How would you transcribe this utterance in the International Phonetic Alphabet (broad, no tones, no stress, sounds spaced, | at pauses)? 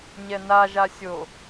ɲ ɛ n a ʒ a sʲ o